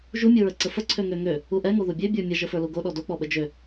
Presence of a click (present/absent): present